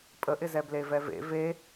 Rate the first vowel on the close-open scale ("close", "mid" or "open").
mid